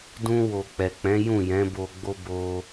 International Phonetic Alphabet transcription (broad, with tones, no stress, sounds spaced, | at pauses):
d ũ˧ w o˨ k͡p ɛ˨ k͡p ɛ̃˨˦ j ũ˦˨ j ɛ̃˨˦ b o˧ ɡ͡b o˦ b o˧